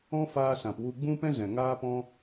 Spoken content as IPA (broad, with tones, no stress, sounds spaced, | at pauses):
ɔ̃˦ f aː˧ s ã˨ p w u˧ ɡ͡b ũ˦ p ɛ̃˦ z ɛ̃˨ ŋ aː˦ p ɔ̃˦